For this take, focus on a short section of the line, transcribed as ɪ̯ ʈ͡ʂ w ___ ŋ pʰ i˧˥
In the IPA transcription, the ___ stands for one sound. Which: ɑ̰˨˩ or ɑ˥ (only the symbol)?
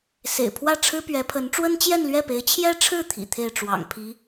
ɑ̰˨˩